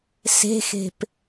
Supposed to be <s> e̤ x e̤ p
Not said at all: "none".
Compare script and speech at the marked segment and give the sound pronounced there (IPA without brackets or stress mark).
s